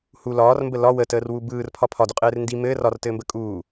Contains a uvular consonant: yes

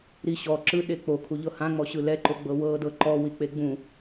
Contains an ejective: no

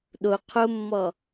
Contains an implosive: yes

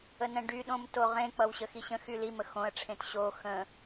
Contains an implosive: yes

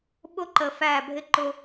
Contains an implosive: yes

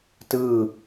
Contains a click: no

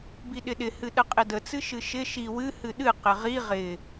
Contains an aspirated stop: no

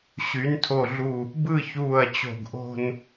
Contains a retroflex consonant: no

